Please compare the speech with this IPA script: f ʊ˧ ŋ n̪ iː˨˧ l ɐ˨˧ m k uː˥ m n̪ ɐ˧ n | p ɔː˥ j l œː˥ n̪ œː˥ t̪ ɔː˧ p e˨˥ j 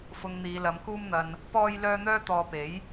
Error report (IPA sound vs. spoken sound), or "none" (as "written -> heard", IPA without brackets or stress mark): none